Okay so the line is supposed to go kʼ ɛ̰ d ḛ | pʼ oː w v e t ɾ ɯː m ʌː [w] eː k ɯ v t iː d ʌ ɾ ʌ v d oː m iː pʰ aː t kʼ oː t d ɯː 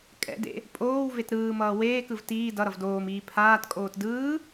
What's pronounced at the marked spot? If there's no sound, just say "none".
w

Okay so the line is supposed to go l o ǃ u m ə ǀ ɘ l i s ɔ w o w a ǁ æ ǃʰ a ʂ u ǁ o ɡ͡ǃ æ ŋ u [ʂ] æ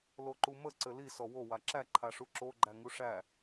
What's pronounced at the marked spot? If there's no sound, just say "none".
ʂ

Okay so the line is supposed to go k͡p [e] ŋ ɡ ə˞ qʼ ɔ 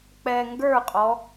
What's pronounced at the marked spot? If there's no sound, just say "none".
ɛ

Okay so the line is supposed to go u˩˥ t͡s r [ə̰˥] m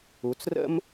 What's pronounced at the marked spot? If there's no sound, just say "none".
ə̰˥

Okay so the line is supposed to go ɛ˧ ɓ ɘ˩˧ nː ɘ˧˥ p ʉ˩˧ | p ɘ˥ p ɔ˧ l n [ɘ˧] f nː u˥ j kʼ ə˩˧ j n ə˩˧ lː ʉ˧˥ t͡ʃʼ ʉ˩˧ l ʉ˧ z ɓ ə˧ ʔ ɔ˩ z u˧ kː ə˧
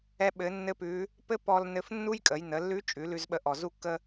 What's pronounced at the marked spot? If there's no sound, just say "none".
ɘ˧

